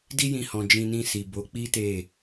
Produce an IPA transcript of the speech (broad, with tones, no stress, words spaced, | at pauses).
di˦jĩ˧hɔ̃˨ d͡ʒĩ˧nĩ˧si˨ bo˨˦k͡pi˦ te˦˨